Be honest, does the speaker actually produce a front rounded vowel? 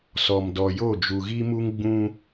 no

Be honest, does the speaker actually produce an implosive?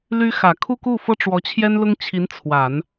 no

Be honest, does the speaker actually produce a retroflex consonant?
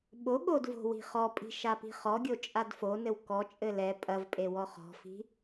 no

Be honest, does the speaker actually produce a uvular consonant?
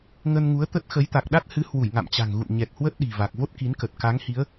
no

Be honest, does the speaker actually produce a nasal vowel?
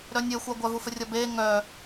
no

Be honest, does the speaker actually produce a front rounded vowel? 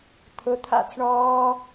no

